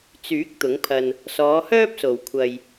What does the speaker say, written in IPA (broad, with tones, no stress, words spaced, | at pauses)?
t͡syː˨˥k̚ t̪ʊ˨˥ŋpʰɐ˨n | sɔː˨˧hœː˥p̚so˨˩w kʷʰɐ˨j